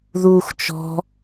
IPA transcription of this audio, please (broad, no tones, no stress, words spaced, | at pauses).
ðuːxt͡ʃɔ̤